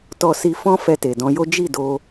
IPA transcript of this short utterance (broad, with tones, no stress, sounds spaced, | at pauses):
t ɔ˧ s i˧ f ɔ̃˦ f ɛ˧ t e˨ d ɔ̃˧ j o˦ d͡ʒ i˦˨ d o˧